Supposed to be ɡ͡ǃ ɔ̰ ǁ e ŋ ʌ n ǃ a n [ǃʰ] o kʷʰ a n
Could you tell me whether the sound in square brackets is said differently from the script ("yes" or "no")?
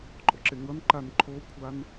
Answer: no